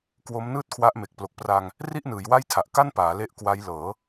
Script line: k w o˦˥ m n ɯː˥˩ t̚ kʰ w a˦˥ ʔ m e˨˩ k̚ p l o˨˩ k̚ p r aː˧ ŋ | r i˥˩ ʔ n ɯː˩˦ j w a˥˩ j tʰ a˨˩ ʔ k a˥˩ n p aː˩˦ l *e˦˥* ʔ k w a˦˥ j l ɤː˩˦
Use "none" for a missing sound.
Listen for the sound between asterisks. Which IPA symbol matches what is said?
e˦˥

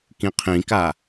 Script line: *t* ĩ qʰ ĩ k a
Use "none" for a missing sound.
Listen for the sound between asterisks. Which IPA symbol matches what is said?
k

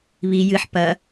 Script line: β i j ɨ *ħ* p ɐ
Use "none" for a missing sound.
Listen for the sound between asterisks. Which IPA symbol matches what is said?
ħ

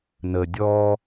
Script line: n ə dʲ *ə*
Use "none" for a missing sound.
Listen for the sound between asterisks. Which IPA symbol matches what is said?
ɔ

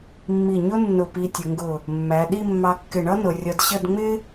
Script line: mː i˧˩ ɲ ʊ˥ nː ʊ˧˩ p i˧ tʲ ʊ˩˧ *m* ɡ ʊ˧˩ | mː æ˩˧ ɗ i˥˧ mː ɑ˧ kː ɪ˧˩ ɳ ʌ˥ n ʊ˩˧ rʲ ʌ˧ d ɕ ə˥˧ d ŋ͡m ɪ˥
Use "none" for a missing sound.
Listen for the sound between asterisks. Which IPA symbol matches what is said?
ŋ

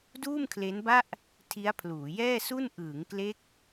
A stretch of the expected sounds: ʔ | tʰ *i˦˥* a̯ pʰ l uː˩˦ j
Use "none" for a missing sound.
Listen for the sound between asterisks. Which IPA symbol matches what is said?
i˦˥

